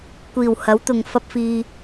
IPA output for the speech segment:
kʷiː˨˩whɐ˨˥wt̪ʊ˨ŋ fɐ˧p̚fiː˨

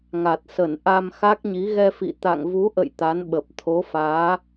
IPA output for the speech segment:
ŋa˨˩t̚sə˧˩n ʔa˧mxa˦˥k̚ɲi˨˦ ɣɛ˧fḭ˧˨ t̪a̰˧˨ŋvu˨˦ʔə̰˧˨j t̪a˨˦nɓə˨˩p̚ t̪ʰo˨˦faː˨˦

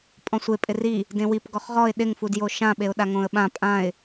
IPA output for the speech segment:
pʼɔ̃sʷe pʼɪri | dẽwip ɡɔχʁɔɪ̯ ɗɪŋfudjo ʃãɓeʊ̯ɗa ŋõə̯ɓã pʼãɪ̯

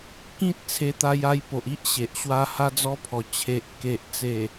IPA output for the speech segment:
kĩ˦t̚ t͡sʰe˧t̪a˧ja˧jpo˨ʔ i˦ʔ ɕe˨ʔɕwa˧ ha˧d͡zɔ˧pʰɔ˨˩ t͡ɕʰe˨ʔ ke˨ʔt͡se˨˩

